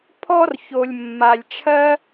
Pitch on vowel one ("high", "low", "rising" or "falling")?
high